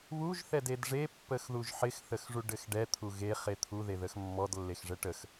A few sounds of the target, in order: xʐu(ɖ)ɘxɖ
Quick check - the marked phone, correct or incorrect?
correct